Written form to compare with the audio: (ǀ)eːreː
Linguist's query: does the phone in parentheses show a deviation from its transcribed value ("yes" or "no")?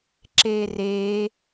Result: yes